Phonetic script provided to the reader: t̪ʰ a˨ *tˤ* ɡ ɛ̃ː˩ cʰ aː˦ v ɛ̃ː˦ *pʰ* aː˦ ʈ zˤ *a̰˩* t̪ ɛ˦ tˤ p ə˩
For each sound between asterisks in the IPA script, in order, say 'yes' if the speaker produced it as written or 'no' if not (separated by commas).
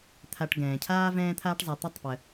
no, no, no